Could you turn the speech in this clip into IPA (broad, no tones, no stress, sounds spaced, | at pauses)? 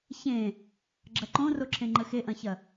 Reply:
ç ẽ | ɡ͡ǁ ɐ ǃ õ r o ǁʰ ẽ ŋ͡ǃ ə x e ʔ ɐ̃ ç ɐ